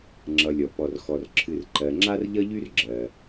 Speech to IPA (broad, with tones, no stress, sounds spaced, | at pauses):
ŋ͡ǁ ʌ˨ lʲ ɔ˩ p ɔ˩ r x ɔ˩ r ǁʰ ɨ˨ r ǃ ɜ˨ ŋ͡ǁ a˥ r ʎ ʌ˥ ʎ y˥ r ɡ͡ǁ ɜ˩